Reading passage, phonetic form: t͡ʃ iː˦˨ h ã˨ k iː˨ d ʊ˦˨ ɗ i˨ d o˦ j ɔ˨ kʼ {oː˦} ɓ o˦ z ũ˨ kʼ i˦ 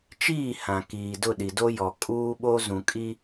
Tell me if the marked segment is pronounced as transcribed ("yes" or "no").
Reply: no